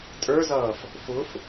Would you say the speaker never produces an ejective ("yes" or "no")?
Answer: no